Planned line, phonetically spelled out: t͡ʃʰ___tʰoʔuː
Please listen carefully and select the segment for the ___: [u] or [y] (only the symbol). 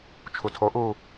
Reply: u